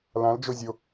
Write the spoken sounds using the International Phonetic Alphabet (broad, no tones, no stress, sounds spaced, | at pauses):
l ã l d͡ʒ o zʲ o